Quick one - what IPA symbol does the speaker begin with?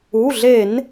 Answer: u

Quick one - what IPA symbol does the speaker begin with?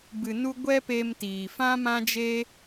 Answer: b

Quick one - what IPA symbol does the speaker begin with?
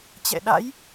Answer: t͡ɕ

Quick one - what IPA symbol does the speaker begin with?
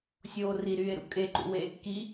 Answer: sʲ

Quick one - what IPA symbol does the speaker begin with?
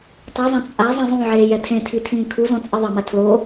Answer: tˤ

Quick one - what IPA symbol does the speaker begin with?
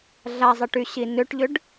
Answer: ɮ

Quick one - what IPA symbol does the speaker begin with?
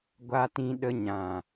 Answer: ɡʷ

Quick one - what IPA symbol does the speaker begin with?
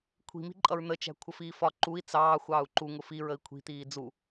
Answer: kʷʰ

